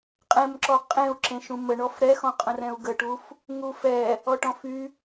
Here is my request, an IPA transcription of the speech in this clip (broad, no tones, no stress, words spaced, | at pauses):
qʼɛ̃mǁɔ qʼẽu̯ǁẽʃũ məɳɔf ɾɛxɔ̃qʼə̃rɛ̃u̯ ɡəʈuf | ŋufɛ | ɔʈɔ̃fy